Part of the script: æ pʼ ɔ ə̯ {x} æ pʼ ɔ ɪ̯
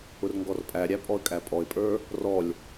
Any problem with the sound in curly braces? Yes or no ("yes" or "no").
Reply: yes